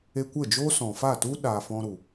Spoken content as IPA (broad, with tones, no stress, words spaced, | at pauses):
e˧kʷə˦˨d͡ʒoː˦ sɔ̃˨fa˦˨tu˦ ɗaː˧fɔ̃˦ɾu˨